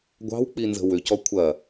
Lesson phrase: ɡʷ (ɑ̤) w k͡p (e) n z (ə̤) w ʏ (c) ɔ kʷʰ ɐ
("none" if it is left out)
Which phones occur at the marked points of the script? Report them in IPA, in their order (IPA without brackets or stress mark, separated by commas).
ɑ̤, i, ə̤, c